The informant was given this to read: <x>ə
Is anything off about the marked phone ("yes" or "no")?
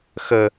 no